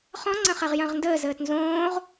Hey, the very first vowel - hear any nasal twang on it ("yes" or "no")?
yes